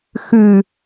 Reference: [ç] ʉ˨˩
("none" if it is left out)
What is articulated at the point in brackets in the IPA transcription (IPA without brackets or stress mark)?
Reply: x